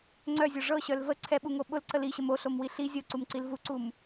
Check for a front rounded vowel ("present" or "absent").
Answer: present